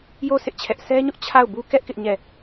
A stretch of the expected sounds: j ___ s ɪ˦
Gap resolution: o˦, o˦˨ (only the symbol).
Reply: o˦˨